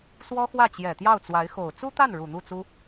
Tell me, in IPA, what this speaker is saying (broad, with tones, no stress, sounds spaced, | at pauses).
s w ɔ˥ x w ä˥˩ t͡ɕ j ɛ˨˩ t̪ j ɑ˥˩ ʊ̯ t͡s w a˧˥ ɪ̯ x o˨˩ ʊ̯ t͡s u˥ t̪ a˥˩ n ɻ u˨˩ n̪ u˥˩ t͡s u˥